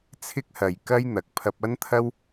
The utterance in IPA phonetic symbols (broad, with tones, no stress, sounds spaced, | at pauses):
t͡sʰ ɪ˥ k̚ h ɐ˨ j k ɐ˥ j n̪ ɐ˨ k̚ pʰ ɐ˧ p̚ ɐ˥ n t̪ʰ ɐ˥ w